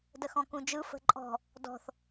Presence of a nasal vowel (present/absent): present